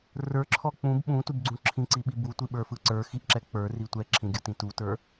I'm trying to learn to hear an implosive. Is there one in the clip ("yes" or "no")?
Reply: yes